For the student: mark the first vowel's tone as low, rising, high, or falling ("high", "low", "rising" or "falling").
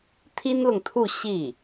high